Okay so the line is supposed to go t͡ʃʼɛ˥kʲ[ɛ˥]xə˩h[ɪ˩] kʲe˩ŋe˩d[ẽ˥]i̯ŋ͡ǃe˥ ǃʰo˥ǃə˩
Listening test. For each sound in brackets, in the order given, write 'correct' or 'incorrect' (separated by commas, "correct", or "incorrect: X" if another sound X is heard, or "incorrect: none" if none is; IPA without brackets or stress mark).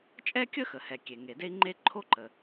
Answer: incorrect: ə˥, incorrect: ɛ˩, incorrect: e˥